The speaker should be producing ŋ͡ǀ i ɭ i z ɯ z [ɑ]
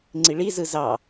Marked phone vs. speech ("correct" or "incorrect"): correct